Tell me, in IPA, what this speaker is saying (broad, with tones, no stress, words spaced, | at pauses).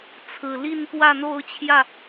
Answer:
t͡sʰɹ̩˨˩li˥˨n pwä˥˨n̪o˥˨ʊ̯ t͡ɕʰjä˥˨